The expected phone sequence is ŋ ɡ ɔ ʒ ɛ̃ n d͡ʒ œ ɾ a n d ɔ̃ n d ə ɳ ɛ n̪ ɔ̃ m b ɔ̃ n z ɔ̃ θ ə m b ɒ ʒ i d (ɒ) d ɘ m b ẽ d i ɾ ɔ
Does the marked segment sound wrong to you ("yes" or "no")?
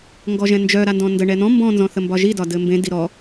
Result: no